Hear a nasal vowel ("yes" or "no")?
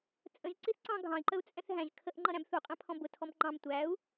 yes